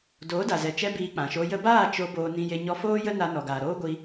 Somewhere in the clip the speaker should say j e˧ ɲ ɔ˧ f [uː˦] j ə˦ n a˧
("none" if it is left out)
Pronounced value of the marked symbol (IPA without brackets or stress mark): oː˦